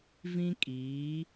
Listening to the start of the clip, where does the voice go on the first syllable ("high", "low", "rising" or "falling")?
high